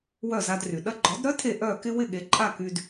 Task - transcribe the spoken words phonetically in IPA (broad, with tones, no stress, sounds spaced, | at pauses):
w œ˥˩ z a˧ d r y˩ ɗ ɐ˧ ɡ͡ǃ ɔ˩˥ d ɾ œ˥ tʰ e˥˩ ʔ œ˥˩ k ɪ˥ w ɪ˥˩ ɠ e˩˥ ǃʼ a˥˩ k y˧ d